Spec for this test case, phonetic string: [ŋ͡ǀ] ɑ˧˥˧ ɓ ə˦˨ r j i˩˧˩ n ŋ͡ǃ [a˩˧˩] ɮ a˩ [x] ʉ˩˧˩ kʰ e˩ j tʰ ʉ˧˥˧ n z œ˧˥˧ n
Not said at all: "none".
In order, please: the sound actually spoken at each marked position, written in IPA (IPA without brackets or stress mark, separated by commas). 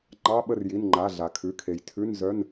ŋ͡ǃ, a˩˧˩, kʰ